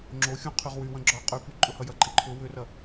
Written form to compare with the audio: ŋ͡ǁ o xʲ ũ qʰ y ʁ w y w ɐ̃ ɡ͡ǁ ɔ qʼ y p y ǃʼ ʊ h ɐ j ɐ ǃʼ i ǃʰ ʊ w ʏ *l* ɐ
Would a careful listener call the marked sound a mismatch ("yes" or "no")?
yes